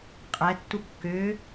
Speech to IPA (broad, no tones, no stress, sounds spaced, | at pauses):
qʼ ɛ tː u kː øː